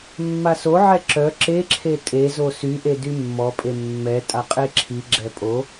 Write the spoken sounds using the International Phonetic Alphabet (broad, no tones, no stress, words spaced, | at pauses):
mːasoʕɛ ǁœ ǁeǁʰe tʼezo syʔe dymːɔpʼe mːɛ tʼaqʼeǁʰiɡ͡ǁɛ pʼo